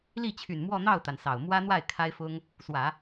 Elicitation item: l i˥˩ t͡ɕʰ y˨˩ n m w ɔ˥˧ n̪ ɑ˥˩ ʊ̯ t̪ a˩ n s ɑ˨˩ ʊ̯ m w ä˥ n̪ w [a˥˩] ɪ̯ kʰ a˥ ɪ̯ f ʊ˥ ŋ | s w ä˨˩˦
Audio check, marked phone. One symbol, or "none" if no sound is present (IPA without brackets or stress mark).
a˥˩